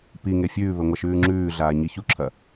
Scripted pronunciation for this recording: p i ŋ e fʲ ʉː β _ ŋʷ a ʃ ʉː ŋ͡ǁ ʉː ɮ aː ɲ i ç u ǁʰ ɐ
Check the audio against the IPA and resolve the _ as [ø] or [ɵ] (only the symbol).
ɵ